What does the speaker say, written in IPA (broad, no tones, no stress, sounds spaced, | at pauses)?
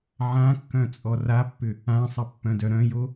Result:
ʕ ã kː œ̃ t͡sʼ ɔ r a pː ʏ | ã sˤ ə pː œ̃ d œ ɾ œ̃ j o